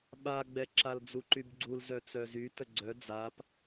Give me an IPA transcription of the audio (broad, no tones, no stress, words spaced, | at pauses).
ɓaɡ͡bɛǁal d͡zuǃybɡ͡ǀul zœt͡sœzy təɡ͡ǀœ d͡zap